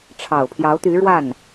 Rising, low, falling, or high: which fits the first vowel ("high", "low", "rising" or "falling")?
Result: low